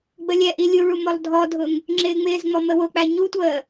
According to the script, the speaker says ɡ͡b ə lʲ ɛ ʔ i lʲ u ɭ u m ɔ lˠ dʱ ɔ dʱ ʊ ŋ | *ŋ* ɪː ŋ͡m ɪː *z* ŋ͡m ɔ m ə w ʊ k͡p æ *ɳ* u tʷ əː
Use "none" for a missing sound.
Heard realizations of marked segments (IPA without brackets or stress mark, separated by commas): ŋ͡ǁ, z, ɲ